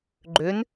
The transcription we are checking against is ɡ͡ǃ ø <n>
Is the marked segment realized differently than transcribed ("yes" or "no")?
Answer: no